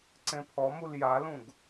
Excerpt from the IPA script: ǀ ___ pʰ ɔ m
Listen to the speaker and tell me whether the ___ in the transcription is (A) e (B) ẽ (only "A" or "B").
B